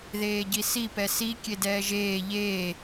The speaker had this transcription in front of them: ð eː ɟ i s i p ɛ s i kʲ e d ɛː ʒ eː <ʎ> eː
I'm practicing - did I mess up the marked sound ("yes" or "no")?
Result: no